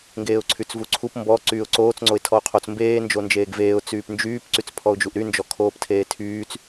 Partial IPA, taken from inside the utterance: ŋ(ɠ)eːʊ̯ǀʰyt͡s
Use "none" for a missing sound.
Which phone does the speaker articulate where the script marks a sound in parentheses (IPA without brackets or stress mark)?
ɡ